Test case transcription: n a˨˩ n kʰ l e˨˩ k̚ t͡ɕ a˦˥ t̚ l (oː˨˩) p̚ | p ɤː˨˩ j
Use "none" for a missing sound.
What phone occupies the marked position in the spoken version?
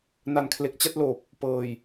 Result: oː˨˩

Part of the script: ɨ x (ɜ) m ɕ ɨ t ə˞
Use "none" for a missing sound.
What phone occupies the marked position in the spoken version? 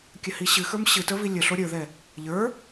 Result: ə˞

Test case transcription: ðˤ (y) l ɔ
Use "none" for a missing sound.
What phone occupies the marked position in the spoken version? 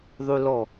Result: y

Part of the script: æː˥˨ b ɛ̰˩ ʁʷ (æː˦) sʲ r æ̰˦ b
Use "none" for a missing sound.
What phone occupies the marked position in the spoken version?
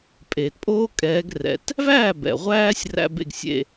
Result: æː˦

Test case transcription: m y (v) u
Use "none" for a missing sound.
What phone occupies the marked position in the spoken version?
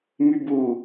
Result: b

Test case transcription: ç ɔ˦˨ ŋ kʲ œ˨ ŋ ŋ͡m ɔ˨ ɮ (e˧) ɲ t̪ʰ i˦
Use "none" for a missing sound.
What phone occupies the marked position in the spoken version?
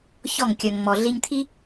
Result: i˧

